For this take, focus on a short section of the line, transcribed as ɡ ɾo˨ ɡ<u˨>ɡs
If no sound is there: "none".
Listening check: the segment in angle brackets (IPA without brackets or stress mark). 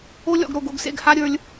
o˨